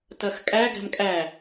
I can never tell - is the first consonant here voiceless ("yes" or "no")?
yes